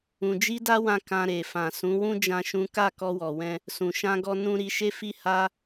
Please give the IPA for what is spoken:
ũ˨ d͡ʒ i˧ d a˧ w ã˧ k ã˧ ɾ e˨ f ã˨ s ũ˨˦ w ũ˦ d͡ʒ ã˦ ʃ ũ˦ k a˦˨ k ɔ˧ w ɔ˨ w ɛ̃˧ | s ũ˨ ʃ ã˧ ɡ ɔ˧ n ũ˧ ɾ i˧ ʃ e˦ f i˦ h a˦

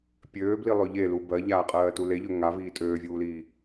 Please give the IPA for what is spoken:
pʲ øː b l i lˠ ø ʎ e l u b ɜ ʎ aː qʼ ɜː t u l e ʎ ø ŋ a v iː tʼ øː vʲ uː l iː

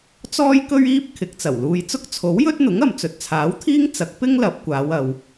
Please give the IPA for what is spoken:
t͡s ɔː˥ j k ɵ˥ ɥ iː˥ p̚ kʰ ɪ˨˥ k̚ t͡s ɐ˨˩ w l uː˧ j t͡s ʊ˥ k̚ t͡sʰ o˨˥ w j ɵ˥ t̚ n̪ ʊ˨˥ ŋ ɐ˨ m t͡s ɵ˨ t̚ t͡sʰ aː˨˥ w t̪ʰ iː˥ ŋ t͡s ɐ˨˥ k̚ p ɪ˥ ŋ l ɐ˨˥ p̚ kʷ aː˨˧ w ɐ˨ w

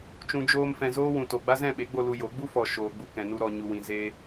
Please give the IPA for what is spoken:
t͡ʃ ũ˨ d͡ʒ oː˧ m f ɛ̃˨ z oː˦ w ũ˨ t o˨ ɡ͡b a˦ z ɛ̃˦˨ ɓ e˨˦ ɡ͡b o˧ l u˧ j o˨˦ ɡ͡b u˦ f ɔ˨ ʃ oː˨ ɡ͡b u˧ k ɛ̃˨ n u˧ ɾ ɔ˨ ɲ u˨ w ĩ˨ z e˧

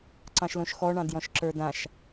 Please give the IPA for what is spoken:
ǀ ɑ̃ ʃ l õ ʃ x ɔ ɳ ɑ̃ d j ɔ̃ ʃ ǁ ə˞ d ã ʃ

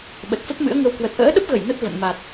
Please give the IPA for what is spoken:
ɓ ə˨˩ t̚ f ə˦˥ p̚ m ɨ̰˧˥ ə̯ ŋ ə˧ w k w ə˨˩ t̚ ʔ ə̰ː˧˥ ɗ ə˦˥ p̚ ɣ ə˧˩ j n ə˦˥ t̚ v ə̰˧˨ n m a˨˩ t̚

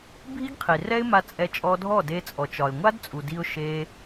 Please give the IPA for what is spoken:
bʱ i˦ ɡ qʰ i˨ r ɛ˦ ɪ̯ m a˧ t͡sʼ ɛ˧ t͡ʃʼ ɔ˧ dʱ ɔ˦˨ d e˧ t͡sʼ ɔ˨ t͡ʃ ɒ˨ ɪ̯ ŋʷ a˦ d t͡sʼ u˨ d i˧ ʊ̯ ʃ e˧

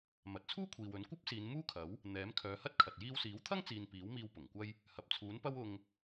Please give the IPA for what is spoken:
m ɐ˨ t̚ t͡sʰ uː˥ kʷʰ iː˨ w ɵ˨˥ n kʷ ɐ˥ p̚ s iː˨˧ n m uː˥ kʰ ɐ˨˥ w | n̪ ɛː˨˥ m kʰ œː˨˧ h ɐ˥ t̚ kʰ ɐ˨ t̚ j iː˧ w s iː˨˥ w t̪ʰ ɐ˥ ŋ t͡s iː˨ n p iː˨˥ w m iː˧ w p ʊ˨˩ ŋ kʷ ɐ˥ j | h ɐ˨ p̚ t͡sʰ uː˨˥ n p ɐ˥ w ʊ˧ ŋ

